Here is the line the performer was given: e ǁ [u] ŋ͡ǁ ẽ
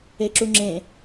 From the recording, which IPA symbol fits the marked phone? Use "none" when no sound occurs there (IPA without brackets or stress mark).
u